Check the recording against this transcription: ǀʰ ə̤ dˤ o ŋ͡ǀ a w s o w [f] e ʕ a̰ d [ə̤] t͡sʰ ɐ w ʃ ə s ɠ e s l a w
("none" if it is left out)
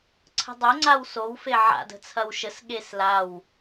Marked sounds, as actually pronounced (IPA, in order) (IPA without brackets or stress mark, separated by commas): f, ə̤